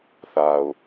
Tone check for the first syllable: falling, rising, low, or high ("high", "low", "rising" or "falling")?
low